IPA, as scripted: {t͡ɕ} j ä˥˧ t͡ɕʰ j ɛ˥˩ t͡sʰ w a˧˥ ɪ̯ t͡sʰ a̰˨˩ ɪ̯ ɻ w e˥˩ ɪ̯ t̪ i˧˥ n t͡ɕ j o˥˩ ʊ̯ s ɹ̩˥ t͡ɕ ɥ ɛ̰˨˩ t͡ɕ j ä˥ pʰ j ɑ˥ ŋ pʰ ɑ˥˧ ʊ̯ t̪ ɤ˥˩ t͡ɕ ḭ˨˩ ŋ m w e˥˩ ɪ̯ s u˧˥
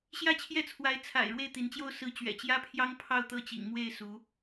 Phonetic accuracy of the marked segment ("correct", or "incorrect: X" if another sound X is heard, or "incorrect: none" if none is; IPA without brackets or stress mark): incorrect: ɕ